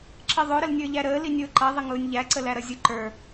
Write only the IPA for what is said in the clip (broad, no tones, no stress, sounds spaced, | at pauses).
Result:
ǁ ə ðˤ ʊ ɾ ə l nʲ ə˞ ʎ æ ɾ əː l i nʲ ʊː ǃ ʌ ðˤ ə ŋ ʊː nʲ ʎ æ ǀ ə l æ ɾ ʌ zʲ ʊ ǃ ə˞